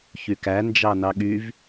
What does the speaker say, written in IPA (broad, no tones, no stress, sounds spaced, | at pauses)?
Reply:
ç y k æ n d͡ʒ ɑ n ɑ ɠ y v